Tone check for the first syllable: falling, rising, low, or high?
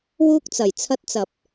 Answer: high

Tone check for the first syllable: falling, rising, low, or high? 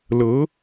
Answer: rising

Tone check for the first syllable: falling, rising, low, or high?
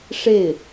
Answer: falling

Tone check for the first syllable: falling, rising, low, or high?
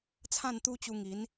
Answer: falling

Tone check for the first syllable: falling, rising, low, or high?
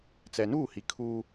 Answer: low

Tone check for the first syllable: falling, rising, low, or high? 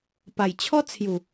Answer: low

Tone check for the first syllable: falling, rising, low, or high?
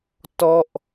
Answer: falling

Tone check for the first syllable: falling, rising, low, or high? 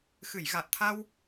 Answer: low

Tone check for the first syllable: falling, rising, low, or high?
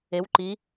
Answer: rising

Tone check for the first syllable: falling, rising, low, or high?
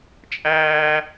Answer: high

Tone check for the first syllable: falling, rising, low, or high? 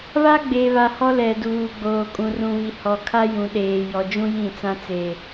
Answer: high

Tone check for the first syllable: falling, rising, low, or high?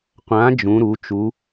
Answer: rising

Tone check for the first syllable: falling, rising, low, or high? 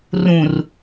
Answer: low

